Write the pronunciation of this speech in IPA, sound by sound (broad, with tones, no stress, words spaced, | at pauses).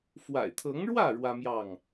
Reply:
fwa̰˨˩ɪ̯t̪ʰɤ˨˦ŋɻwä˥˨ ɻwä˦mjɑ˥˨ŋ